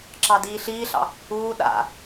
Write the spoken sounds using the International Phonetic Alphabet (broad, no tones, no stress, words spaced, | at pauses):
ǁɑdiːɬiːɬɑ̰ | uː ɗa̰